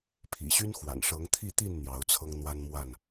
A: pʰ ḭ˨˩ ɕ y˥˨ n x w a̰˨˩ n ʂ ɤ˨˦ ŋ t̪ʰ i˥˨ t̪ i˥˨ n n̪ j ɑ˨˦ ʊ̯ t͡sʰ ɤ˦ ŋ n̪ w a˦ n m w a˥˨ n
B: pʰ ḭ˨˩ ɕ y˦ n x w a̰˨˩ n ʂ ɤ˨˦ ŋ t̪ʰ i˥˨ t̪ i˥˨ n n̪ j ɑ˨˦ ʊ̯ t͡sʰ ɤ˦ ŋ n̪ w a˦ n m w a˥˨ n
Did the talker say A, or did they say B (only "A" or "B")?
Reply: B